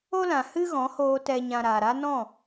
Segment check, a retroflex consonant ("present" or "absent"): absent